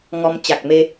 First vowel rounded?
yes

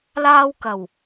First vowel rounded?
no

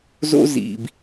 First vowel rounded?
yes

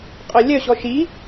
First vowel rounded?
yes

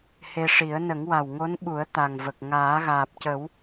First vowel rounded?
no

